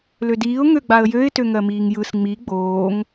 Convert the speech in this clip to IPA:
l ø d iː ʊ̯ ŋ ø ɡ͡b a ə̯ j ø ɪ̯ t ø ŋ ɜ m iː ŋ j ɯ s ŋ͡m i ɡ͡b oː ŋ

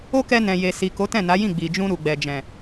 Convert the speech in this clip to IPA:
o˦ k ɛ˧ n ɛ̃˨ j e˨ s i˨ k o˨˦ t ɛ̃˦˨ n a˨˦ j ĩ˦˨ ɡ͡b i˨ d͡ʒ ũ˧ ɾ u˨ ɡ͡b ɛ˨ d͡ʒ ɛ̃˨

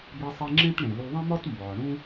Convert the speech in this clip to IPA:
b e˧ sˤ i˧ ŋ͡ǁ ẽ˥ t ɳ ẽ˩ l u˧ ðˤ ẽ˥ m ɒ˥ t m b ɒ˩ ɳ ũ˥

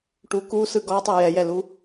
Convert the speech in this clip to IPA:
ʈ u k u s ɯ ɡ ɔ tˤ ɯ j ɛ j ɛ l u

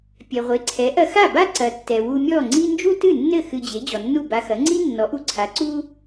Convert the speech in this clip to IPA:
pʲ ɛ˩ ʁʷ e˩˥ ǀʰ ɛ˩˥ ʔ ɐ˧ x a˥˩ b a˥ ǀ ɐ˩ tː ɛ˩ w u˧ mʲ ɔ˥˩ ŋ͡ǀ i˥ n d͡ʒ u˥ t ɨ˥˩ nː ɘ˥˩ x ɨ˧ d͡ʑ e˩˥ d͡ʑ ɔ˩ nː u˥˩ b a˧ x ɐ˩˥ ŋ͡ǀ i˥ nː ɔ˩˥ ʔ u˧ ǀʰ a˩˥ ǀ u˥

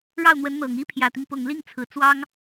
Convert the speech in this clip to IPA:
ɻ ɑ˥˩ ʊ̯ n̪ w ə˧˥ n n̪ ɤ˨˩ ŋ i˥ pʰ j ä˨˩ t̪ i˦ ŋ p ʊ˨˩ ŋ l i˥˩ ŋ t͡sʰ ɹ̩˨˩ t͡s w ɑ˥ ŋ

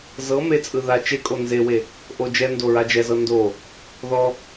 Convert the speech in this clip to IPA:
z ɤ m e t͡sʼ ɯ ð a t͡ʃ e kʼ o n z e w e | ʔ o d͡ʒ ɛ n d o ɹ a d͡ʒ ɛ z ɤ n d o | ð ɔ

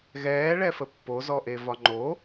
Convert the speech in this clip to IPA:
ɣ ɛː ɭ ɛ f ə pː o z ɔ ʔ e v ɒ ŋ͡ǃ o

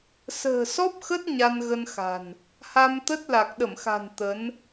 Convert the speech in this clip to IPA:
s ə̤ː˨˩ s ɔ˦˥ p̚ x ə˦˥ t̚ ɲ a˧ n ɣ ə˧ n x a̤˨˩ n | h a˧ m t̪ ə˦˥ t̚ l a˨˩ k̚ ɗ ə˧˩ m x a̤˨˩ n t̪ ə˨˦ n

